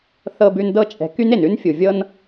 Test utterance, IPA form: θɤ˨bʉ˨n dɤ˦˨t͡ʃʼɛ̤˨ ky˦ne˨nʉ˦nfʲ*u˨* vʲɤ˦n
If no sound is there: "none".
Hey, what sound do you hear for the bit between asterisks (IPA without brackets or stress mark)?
u˨